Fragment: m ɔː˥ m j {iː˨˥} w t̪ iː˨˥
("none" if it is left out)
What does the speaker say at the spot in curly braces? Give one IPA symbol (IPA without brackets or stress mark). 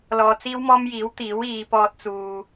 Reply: iː˨˥